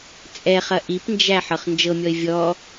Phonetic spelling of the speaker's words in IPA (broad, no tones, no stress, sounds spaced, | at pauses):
t͡sʼ ɛ χ ɐ ʔ i p n d͡ʒ æ ħ ɤ χ n d͡ʒ ɤ mʲ ɔ ɪ̯ vʲ ɔ